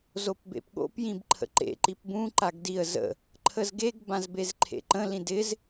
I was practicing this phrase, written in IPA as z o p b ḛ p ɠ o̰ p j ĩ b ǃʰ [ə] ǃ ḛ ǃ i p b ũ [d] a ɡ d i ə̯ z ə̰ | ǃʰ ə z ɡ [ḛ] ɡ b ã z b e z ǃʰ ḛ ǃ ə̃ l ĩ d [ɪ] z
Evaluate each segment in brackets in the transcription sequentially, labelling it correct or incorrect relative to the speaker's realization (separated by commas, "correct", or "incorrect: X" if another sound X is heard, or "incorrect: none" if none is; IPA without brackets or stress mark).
incorrect: ə̰, incorrect: ǃ, incorrect: e, correct